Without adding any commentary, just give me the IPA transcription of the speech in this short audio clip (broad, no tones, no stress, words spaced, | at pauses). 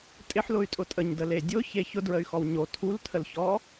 tʼɪħlʊy̯tʼʊ tʼəɲdəle dʲʊçe çʊdɹəy̯xɔw ɲo tʰultʰəlçɔ